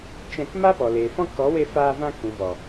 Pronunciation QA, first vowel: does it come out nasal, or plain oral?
nasal